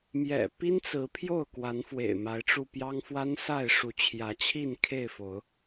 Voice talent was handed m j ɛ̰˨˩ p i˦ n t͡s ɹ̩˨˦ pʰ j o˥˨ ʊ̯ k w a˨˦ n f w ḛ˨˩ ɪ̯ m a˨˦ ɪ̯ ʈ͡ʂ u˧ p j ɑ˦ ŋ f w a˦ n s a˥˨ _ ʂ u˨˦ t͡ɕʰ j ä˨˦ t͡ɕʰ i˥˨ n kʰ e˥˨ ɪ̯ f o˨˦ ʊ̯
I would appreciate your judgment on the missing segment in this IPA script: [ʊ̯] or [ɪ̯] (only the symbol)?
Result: ɪ̯